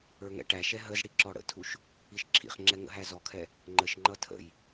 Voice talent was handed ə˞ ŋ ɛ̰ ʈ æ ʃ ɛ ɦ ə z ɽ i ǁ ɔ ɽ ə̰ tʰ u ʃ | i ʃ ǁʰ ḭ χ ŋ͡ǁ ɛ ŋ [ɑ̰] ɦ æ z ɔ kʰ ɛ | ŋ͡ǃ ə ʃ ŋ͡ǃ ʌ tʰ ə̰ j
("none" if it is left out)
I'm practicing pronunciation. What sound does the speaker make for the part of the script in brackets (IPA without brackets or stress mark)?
ə̰